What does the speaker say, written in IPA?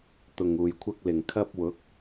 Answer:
t̪ ʊ˨ ŋ uː˨ j kʷʰ ɐ˥ k̚ l ɪ˨˩ ŋ kʰ ɐ˥ p̚ w ʊ˨˥ k̚

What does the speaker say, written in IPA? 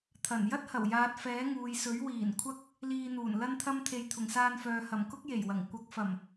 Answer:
t̪ʰ ɐ˨˩ n j ɐ˥ t̚ h ɐ˨˩ w j aː˨ t̚ f ɛː˨˥ ŋ uː˨ j s ɵ˨˥ ɥ w iː˨˩ n kʷʰ ɐ˥ k̚ | l iː˧ n̪ uː˨˩ n l ɐ˥ n t̪ʰ ɐ˥ m t̪ʰ e˧ j t̪ʰ ʊ˨˩ ŋ s aː˧ n f œː˨ h ɐ˨˩ m k ʊ˥ k̚ j e˨˩ j w ɐ˨˩ ŋ kʷ ɐ˨˥ k̚ f ɐ˨˩ m

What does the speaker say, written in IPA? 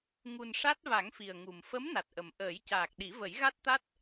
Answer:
ŋ u˨˩ n ʂ a˦˥ t̚ v a˨˩˦ ŋ f i˨˩ ə̯ ŋ u˨˩ m f ə˧˥ m n a˨˩ t̚ ʔ ə˨˩ m ʔ əː˨˩˦ j c aː˨˩ k̚ ɗ i˨˩˦ v ə˨˩˦ j ɣ a˦˥ t̚ t̪ a˦˥ t̚

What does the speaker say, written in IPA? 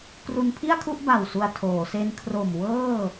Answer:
k r u˧ n pʰ i˥˩ a̯ kʰ u˥˩ ʔ b a˨˩ w s u˧ a̯ tʰ oː˩˦ s e˦˥ n kʰ r o˨˩ m w ɤː˥˩

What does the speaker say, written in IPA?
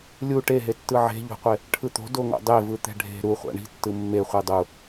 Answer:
lʲ u ʈ e ɦ e tː ɯ ʕ e̤ ʎ o̤ qʷ e | ʈʰ ɯ t̪ o̤ d o ŋ o̰ dˤ e v ɯ t̪ ɛ̤ ɖʱ e̤ ɾ u χʷ a̰ ɳ i̤ tː ɯ mː e χʷ i dˤ u

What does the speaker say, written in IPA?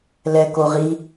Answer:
l ɛ k o ʁ i

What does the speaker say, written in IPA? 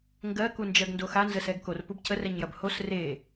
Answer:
ŋ ɡ ɜ k u n d͡ʒ ɜ ɡ n d o x a n z ə s ɛ ɡ k o r p u b cʰ ə r ɛ ɲ j ɐ b h o s r e

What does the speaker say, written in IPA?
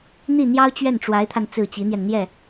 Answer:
n̪ i˥˩ n̪ j ɑ˥ ʊ̯ t͡ɕ ɥ ɛ˥˩ n ʈ͡ʂ w a˧˥ ɪ̯ t̪ʰ a˧ n t͡s ɹ̩˥˩ t͡ɕ i˧˥ n̪ j ɛ˧ n n̪ j ɛ˥˩

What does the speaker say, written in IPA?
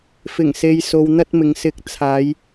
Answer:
f ɪ˨˩ ŋ s e˨ j s o˨ w n̪ ɐ˥ t̚ m ɪ˨˧ ŋ s ɪ˨˥ k̚ t͡sʰ aː˨˧ j

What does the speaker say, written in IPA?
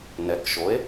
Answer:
n ɛ˩˥ k ʃ o˩˥ e̯

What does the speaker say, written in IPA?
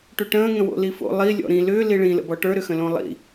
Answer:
ʈ ʏ ʈ ə̃ː ŋ ə̃ w o̰ l i f o̰ lˠ i lʲ ɔ̰ ɾ ĩ l ʏː l i ɭ ĩ l ə̰ b ɔ ʈ ə˞ ɾ ʏ x ə̃ l õ lˠ ḭ

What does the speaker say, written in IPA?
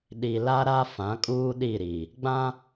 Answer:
ɗ i˨ l a˦ ɾ a˦ f ã˨˦ kʼ uː˦ ɗ i˦˨ ɾ i˨ | ɡ͡b ã˦

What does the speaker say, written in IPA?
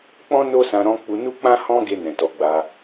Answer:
k͡p ɔ̃˦ n o˦ s ã˧ ɾ ɔ̃˧ k͡p u˧ n u˦ k͡p ã˦ h ɔ̃˦ ɡ e˧ n ɛ̃˨ t ɔ˨˦ ɡ͡b a˧

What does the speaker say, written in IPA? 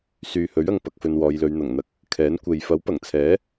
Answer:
s yː˨ h ɵ˨˥ ɥ ɐ˨ ŋ p ɐ˧ k̚ f ɵ˧ n w ɔː˨˧ j l ɵ˨˧ ɥ n̪ ɐ˨˩ ŋ n̪ ɐ˧ k̚ | kʰ ɛː˨˥ n kʷ e˨ j f ɐ˨˥ w p ɐ˨˩ ŋ t͡sʰ ɛː˨˥

